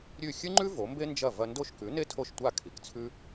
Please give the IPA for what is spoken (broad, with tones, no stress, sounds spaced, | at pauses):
ɾʲ ʉ˥˩ xʲ ɨ˥ ŋ͡ǃ ʉ˥ v o˩˥ m b e˥ n d͡ʒ ɐ˥˩ v ɐ˧ n d o˥˩ ʃ k ʉ˩˥ n e˥ tʰ o˥˩ ʃ tʷ a˥˩ kʰ i˩ k t͡sʰ ʉ˥